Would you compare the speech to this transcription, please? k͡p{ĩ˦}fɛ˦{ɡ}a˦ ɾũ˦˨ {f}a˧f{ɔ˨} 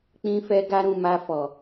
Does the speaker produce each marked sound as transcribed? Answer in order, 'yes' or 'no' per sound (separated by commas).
yes, yes, no, yes